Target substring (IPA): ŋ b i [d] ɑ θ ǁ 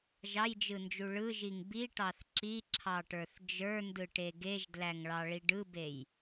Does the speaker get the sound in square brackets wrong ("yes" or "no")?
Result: yes